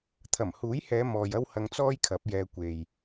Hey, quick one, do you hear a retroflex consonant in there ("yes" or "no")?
no